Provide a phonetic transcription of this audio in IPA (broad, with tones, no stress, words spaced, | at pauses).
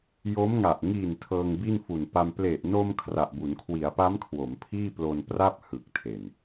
jo˦˥mŋa˨˩ʔ ŋiː˨˩n tʰɤː˧ŋbi˥˩nfu˨˩npa˧m ple˨˩ʔno˧m kʰra˨˩ʔbu˩˦nkʰwi˩˦a̯pa˦˥m kʰwo˩˦mpʰiː˥˩plo˧npra˥˩p̚ hɯ˨˩k̚tʰe˨˩n